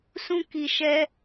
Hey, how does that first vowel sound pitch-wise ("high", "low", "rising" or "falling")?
high